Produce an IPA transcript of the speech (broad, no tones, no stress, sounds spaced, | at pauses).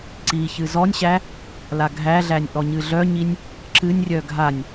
ǀ i ç ɨ z ɔ nʲ ɕ æ | l a ɡʱ æ ɮ æ nʲ ʔ ɔ ɲ ɨ ɮ œ ɲ i nʲ | ǁ ɨ nʲ rʲ œ ɡʱ a nʲ